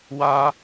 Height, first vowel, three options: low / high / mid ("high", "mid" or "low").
low